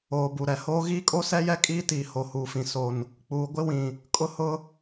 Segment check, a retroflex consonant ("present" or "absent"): absent